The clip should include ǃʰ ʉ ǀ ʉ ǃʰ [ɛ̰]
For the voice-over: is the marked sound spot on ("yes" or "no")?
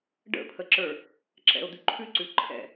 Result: yes